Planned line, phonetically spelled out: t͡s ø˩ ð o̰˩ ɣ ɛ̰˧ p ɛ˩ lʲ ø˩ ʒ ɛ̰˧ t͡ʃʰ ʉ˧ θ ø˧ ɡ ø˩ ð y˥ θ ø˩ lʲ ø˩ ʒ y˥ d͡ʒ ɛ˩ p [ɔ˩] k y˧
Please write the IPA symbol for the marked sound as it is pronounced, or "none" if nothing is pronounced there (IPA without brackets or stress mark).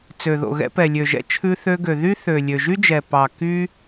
ɑ˩